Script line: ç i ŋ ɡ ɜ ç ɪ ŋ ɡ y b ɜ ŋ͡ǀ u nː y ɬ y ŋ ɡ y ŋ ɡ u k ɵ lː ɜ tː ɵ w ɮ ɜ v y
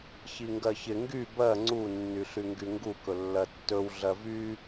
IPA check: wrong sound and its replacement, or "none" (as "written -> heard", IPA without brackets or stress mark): none